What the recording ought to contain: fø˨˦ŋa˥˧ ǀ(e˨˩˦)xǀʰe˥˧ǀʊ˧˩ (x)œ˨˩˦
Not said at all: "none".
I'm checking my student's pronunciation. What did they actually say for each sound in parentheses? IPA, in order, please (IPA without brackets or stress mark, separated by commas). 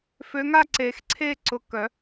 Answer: e˨˩˦, k